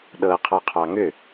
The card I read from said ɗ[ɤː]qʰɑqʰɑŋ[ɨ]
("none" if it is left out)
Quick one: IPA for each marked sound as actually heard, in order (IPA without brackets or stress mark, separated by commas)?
ɤː, ʏ